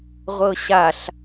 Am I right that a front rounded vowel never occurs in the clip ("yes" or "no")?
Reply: yes